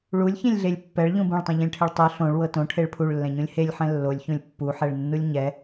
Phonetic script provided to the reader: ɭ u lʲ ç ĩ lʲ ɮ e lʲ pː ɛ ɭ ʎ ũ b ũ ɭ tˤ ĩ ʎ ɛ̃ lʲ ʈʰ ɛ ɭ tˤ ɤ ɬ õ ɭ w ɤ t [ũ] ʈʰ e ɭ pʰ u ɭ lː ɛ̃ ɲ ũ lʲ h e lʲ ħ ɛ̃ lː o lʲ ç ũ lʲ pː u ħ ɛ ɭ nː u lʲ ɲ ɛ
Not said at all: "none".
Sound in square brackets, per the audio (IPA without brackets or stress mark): õ